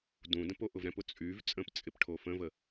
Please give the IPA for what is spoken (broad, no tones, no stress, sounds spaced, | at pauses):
d ũ d ə̃ p o ʔ ʊ v ɾ ɛ̃ p ʊ t͡sʼ y v t͡sʼ ə̃ p t͡sʼ ɪ p ʈʰ o f ə̃ v ə